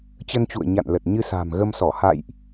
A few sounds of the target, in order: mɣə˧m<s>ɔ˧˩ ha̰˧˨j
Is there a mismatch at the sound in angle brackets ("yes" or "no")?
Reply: no